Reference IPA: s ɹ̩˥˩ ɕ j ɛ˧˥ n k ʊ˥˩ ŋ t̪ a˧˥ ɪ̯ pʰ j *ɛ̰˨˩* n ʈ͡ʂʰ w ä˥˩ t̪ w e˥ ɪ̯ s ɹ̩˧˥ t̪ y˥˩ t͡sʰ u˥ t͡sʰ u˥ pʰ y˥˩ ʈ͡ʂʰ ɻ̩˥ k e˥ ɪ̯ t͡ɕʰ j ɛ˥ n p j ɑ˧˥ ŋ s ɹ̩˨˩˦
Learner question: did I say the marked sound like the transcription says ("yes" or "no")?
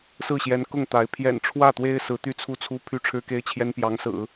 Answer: yes